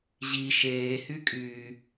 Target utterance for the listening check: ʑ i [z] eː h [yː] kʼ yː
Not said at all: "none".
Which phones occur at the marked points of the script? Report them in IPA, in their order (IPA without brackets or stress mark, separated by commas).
ʃ, y